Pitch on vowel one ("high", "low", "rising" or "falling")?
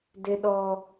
high